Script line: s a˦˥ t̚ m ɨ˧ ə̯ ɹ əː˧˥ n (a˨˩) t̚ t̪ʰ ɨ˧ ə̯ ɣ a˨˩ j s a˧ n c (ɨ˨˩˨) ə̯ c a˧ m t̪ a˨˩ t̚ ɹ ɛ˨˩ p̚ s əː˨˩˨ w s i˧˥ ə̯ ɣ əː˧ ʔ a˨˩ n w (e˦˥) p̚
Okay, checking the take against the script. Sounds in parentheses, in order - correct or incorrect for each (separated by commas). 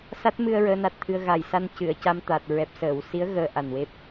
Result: correct, correct, correct